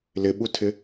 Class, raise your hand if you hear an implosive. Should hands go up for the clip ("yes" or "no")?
yes